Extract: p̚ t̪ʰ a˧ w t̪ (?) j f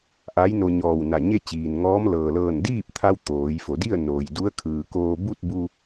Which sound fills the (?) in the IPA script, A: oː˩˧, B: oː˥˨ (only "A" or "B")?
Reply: A